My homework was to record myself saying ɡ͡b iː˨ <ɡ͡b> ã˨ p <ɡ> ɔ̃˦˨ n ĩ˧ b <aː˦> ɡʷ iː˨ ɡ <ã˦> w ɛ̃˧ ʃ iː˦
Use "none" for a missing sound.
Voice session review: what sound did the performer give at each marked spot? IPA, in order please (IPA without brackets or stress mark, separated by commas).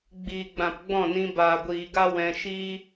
ɡ͡b, ɡ͡b, aː˨, a˦